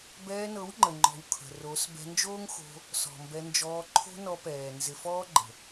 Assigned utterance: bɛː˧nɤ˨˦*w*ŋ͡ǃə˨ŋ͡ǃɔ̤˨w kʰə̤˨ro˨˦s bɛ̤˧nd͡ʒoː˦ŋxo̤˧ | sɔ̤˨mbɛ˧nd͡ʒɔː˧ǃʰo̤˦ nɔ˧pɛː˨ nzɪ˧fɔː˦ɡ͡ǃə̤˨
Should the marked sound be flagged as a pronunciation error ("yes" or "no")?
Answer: no